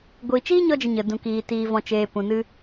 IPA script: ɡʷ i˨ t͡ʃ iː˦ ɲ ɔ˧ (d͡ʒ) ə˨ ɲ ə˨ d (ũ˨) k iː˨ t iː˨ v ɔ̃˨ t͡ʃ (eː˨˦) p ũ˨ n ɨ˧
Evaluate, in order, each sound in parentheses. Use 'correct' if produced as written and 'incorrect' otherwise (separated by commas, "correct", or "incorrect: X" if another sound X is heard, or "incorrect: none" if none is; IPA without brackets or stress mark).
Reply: correct, correct, incorrect: eː˨